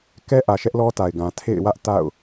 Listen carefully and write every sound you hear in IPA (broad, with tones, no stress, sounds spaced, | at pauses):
k ɛ˦ ʔ ä˨ ʃ ɛ˦ ʔ l ɔ˦ t a˨ ɪ̯ ɡ ã˨ tʰ ḛ˦˨ ɪ̯ w ä˦ ʔ t a̰˦˨ ʊ̯